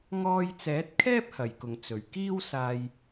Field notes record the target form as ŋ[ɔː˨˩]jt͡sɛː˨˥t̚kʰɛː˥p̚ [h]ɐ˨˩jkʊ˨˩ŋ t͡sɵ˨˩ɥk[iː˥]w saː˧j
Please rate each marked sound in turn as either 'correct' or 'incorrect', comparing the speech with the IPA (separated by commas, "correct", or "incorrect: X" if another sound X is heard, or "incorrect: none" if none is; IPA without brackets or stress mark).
incorrect: ɔː˧, correct, correct